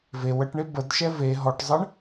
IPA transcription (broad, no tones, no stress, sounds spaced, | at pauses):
v e w ə ʈ ɳ e b ə d ʃ ɛ v e ɦ ɔ ʈ zˤ ə ɳ